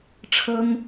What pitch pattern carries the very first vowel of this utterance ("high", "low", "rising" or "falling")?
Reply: high